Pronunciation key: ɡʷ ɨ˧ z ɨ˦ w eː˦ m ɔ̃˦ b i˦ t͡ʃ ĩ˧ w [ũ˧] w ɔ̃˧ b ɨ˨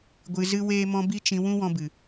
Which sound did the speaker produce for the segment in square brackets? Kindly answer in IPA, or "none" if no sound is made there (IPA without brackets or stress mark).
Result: ũ˦